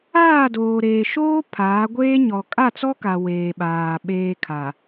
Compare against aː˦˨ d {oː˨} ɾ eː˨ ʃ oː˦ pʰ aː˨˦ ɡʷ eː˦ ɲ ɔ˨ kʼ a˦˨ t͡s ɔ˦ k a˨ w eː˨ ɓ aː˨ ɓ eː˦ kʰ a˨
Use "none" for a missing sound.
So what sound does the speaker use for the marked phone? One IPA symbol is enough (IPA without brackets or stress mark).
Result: oː˨